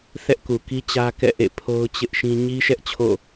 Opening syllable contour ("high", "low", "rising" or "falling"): high